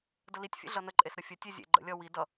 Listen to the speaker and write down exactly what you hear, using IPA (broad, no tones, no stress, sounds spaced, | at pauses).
d ə l i tʲ fʲ ḛ ɮ ʌ n ə ǃʼ e s ɾ ə fʲ ə tʲ e zʲ ḛ ɡ͡ǃ ə̰ lʲ ʌ w i d ʌ